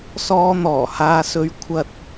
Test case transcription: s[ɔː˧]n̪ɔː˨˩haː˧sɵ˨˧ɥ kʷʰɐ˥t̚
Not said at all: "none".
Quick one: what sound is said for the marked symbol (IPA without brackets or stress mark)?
ɔː˧